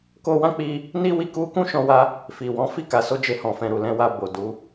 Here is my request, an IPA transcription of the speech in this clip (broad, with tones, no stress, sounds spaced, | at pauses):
k o˧ w ã˦ k͡p i˧ | n i˦ w i˦˨ k u˧ k ũ˦ ʃ ɔ̃˧ w a˧ | f i˨ w ɔ̃˨˦ f i˦˨ k a˨ s o˧ d͡ʒ e˧ h ɔ̃˨ f ɛ̃˨ ɾ u˨ l ɛ̃˧ w a˧ b o˨ d u˨˦